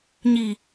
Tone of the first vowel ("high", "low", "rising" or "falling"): low